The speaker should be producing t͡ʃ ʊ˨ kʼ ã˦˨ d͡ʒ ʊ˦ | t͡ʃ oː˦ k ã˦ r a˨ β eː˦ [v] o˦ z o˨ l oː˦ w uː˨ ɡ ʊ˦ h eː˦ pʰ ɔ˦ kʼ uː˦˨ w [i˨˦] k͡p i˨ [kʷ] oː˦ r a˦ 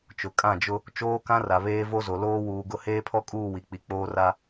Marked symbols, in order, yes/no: yes, no, no

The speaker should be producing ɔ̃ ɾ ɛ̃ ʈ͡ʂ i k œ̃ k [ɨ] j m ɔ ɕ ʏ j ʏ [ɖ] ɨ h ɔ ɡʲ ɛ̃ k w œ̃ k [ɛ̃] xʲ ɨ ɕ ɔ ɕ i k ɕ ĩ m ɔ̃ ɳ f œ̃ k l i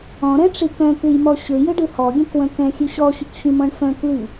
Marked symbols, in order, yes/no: yes, yes, yes

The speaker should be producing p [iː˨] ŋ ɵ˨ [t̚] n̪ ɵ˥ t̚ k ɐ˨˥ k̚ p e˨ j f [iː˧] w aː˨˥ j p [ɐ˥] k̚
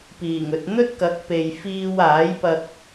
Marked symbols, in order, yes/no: no, yes, yes, no

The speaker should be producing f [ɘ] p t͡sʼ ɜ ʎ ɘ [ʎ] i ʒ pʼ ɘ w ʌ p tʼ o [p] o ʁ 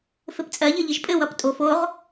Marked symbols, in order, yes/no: yes, yes, no

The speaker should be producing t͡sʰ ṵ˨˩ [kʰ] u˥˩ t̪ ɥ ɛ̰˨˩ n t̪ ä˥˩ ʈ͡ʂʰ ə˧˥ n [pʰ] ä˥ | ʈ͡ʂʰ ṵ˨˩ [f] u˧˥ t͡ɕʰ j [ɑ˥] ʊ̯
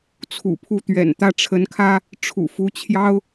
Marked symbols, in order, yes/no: no, no, yes, yes

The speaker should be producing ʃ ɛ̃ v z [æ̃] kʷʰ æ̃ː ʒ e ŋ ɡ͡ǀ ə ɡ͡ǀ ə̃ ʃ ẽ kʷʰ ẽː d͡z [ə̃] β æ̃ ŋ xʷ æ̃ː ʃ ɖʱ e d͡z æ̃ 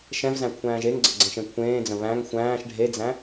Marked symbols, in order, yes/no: yes, yes

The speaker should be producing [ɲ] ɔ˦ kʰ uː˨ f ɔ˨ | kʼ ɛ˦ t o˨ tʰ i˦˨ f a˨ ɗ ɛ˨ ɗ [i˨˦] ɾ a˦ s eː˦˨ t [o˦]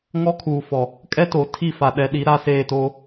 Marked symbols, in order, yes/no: no, yes, yes

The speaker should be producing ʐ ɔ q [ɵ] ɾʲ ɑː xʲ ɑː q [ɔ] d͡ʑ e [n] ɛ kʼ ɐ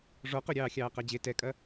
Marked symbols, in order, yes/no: yes, no, no

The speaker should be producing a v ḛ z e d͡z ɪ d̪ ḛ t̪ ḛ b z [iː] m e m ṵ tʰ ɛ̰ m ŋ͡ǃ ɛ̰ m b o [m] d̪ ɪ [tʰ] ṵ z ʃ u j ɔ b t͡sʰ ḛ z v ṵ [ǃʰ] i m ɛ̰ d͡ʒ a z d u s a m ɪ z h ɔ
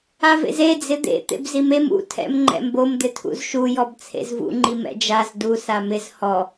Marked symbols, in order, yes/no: no, yes, yes, no

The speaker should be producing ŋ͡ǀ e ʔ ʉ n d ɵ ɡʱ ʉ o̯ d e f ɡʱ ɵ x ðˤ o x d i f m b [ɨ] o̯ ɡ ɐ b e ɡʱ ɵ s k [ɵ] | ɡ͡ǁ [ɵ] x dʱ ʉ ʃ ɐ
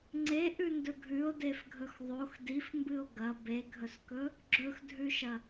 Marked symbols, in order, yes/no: yes, yes, yes

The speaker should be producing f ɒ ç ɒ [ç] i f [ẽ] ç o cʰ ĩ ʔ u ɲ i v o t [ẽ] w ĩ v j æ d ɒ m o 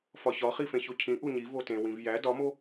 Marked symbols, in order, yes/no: no, yes, yes

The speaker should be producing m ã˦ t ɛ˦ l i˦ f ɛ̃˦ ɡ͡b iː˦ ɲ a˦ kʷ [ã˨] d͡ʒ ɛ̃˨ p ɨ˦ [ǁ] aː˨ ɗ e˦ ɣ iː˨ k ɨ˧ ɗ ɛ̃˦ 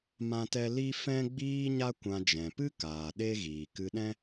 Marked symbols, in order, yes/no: no, no

